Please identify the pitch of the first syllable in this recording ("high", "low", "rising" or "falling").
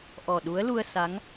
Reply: low